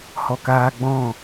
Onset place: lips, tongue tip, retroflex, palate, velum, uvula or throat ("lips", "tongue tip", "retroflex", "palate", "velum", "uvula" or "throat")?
throat